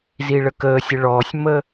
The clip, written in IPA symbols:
z i ɭ ə k əː sʲ ə ɭ ɔː sʲ m ə

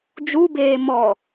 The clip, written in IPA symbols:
d͡ʒ u b eː m ɔ

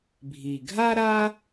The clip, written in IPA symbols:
bʱ i˩ ɡʱ a˥ ɾ a˥

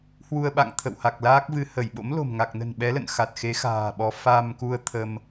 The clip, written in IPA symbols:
h w u˧ ə̯ ɓ a̰˧˨ ŋ t̪ʰ ə̰˧˨ w h a˨˩ k̚ l aː˦˥ k̚ v ɨ˧ h ə˧˩ j ɓ o̰˧˥ m l o̤˨˩ m ŋ a˨˩ k̚ n ə̤˨˩ n ɓ ɛ˨˦ l ə̰˧˨ n x a˨˩ t̚ x e˨˦ x a̤ː˨˩ ɓ ɔ˨˦ f a˧ m k u˧ ə̯ t̪ʰ ə˧ m

